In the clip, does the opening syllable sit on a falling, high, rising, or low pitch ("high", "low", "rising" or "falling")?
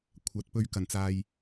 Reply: rising